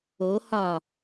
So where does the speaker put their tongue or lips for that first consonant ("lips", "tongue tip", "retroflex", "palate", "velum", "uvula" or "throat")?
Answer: throat